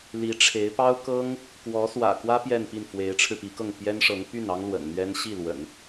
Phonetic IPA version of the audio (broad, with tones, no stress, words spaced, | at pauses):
li˧˥ʈ͡ʂʰe˧˥ɪ̯ pɑ˥ʊ̯kɤ˥ŋ | kwɔ˧˥swä̰˨˩kwä˥ pjɛ˥˧npi˥˩n fwe˧˥ɪ̯ʈ͡ʂʰɻ̩˧pi˧˥kɤ˥˩ŋ pjɛ˥nʂɤ˧˥ŋ py˥˩nɑ˥ŋ lwə̰˨˩nn̪ɥɛ˥n ɕi˥˩lwə̰˨˩˦n